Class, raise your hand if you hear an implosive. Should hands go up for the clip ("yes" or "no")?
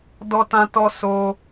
no